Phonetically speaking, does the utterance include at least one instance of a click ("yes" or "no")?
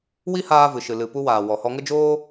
no